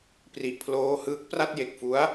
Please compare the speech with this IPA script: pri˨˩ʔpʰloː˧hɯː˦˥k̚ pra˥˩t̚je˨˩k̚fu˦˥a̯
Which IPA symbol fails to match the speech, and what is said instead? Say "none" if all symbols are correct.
none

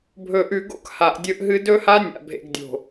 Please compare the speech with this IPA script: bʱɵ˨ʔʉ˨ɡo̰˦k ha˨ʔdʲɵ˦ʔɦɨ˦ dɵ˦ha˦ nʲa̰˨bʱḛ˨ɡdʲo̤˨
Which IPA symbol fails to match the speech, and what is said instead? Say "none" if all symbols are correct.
none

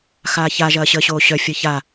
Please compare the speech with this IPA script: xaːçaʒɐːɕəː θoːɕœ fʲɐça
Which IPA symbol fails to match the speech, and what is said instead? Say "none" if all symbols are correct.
θ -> ɕ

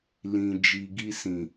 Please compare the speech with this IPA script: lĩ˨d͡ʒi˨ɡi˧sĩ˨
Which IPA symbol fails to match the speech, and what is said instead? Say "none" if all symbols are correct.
none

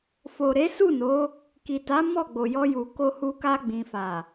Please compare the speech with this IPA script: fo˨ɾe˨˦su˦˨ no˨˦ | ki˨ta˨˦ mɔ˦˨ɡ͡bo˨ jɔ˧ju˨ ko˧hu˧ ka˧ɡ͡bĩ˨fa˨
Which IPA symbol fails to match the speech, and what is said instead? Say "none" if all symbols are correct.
none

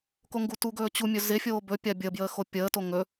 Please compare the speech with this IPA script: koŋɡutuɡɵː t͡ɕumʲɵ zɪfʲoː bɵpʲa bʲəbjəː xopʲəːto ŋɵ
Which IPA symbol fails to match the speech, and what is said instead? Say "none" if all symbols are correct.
none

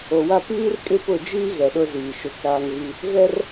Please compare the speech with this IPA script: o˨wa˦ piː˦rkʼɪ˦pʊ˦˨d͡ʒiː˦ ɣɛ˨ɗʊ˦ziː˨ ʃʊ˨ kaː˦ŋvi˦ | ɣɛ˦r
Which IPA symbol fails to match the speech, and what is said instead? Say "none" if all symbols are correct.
none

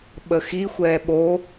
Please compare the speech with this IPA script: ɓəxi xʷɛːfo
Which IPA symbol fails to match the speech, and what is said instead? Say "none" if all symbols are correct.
f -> ɓ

